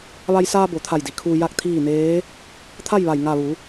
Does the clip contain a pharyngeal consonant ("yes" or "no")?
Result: no